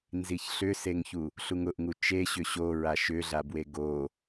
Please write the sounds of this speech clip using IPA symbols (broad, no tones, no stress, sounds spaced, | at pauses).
n z i ç ɬ ʏ s e ŋ ç u | ɬ u ŋ ʊ ʔ ŋ u t͡ʃ e ɕ ʏ ɕ o ɹ a ʃ ʏ ɮ a b w e ɡ o